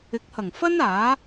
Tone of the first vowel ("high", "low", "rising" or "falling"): rising